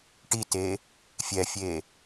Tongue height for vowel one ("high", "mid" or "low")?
high